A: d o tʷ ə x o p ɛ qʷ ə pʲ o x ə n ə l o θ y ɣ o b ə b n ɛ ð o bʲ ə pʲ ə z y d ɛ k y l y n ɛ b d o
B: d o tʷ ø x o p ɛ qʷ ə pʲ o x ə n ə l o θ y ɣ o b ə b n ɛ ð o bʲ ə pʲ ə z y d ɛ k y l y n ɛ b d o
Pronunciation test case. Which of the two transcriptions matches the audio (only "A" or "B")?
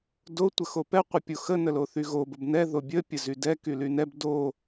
A